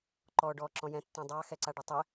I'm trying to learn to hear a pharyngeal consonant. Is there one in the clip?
no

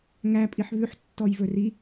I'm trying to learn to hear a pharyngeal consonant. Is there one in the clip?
yes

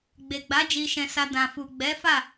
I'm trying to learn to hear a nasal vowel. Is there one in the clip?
yes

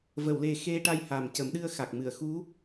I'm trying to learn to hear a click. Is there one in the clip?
no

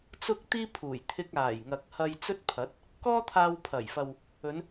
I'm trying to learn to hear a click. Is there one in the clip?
no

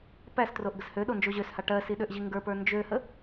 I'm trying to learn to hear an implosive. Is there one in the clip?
yes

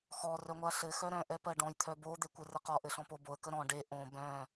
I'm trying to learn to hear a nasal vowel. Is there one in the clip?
yes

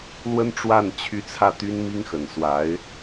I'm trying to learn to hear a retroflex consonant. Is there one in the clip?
yes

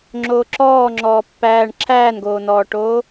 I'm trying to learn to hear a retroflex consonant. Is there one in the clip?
yes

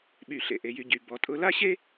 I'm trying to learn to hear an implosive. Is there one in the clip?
yes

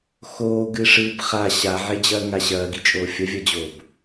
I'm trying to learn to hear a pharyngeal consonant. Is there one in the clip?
yes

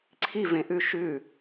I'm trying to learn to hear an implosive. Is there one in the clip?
no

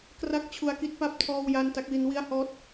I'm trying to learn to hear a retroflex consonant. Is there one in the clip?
no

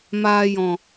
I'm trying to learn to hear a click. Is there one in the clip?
no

